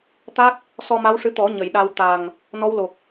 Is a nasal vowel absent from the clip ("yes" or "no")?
yes